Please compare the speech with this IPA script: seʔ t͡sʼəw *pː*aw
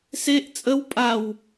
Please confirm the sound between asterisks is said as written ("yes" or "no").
no